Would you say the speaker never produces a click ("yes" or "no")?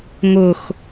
yes